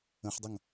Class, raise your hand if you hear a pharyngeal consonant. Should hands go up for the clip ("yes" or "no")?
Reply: yes